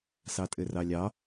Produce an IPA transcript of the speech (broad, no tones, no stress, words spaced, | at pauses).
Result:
sɑtʼɘrɑlʲɑ